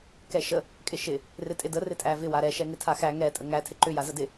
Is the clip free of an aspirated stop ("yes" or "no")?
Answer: no